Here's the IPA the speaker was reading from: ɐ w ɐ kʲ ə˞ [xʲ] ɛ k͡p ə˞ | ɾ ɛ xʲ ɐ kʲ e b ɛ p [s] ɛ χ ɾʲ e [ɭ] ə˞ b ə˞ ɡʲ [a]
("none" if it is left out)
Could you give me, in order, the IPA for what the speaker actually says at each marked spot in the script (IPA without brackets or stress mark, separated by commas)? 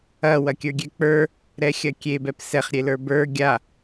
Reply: ɡʲ, s, l, a